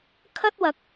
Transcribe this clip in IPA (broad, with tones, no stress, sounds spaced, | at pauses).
kʰ ɐ˥ t̚ w ɐ˧ k̚